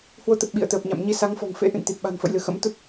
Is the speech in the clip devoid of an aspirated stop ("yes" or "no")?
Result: yes